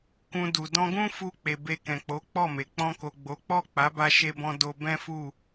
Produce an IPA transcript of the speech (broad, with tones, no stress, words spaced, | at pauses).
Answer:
kũ˧du˨ dɔ̃˧ɡũ˦fu˧ k͡pe˨be˧ kɛ̃˨k͡po˨˦k͡pɔ˦˨me˨ k͡pɔ̃˧ko˨ɡ͡bo˨˦k͡pɔ˦˨ k͡pa˨˦ba˧ʃe˧bɔ̃˧ do˧ bɛ̃˦fu˦˨